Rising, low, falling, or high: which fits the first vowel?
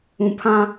low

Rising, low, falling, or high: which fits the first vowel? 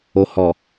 low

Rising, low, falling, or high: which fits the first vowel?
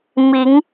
rising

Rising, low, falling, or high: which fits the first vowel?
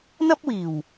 high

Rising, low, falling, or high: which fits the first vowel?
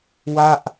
falling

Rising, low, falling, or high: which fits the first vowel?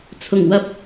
low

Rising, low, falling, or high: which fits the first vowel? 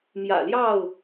low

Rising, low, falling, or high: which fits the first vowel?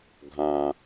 low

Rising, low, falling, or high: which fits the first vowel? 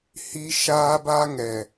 high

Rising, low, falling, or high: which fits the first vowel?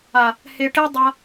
low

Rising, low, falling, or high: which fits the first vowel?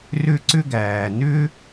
high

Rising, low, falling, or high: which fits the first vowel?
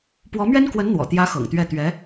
rising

